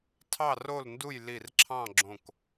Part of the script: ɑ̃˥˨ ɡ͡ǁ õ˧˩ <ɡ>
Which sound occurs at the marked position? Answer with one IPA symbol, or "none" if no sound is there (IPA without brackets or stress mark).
k